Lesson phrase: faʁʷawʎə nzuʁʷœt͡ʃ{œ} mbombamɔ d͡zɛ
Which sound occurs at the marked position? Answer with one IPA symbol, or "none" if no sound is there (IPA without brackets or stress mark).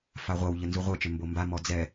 ø